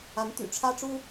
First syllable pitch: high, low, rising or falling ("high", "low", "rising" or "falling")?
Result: rising